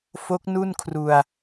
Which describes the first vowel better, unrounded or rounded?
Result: rounded